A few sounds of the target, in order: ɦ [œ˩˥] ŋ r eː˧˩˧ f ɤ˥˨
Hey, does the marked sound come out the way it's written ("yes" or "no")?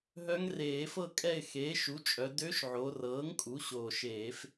no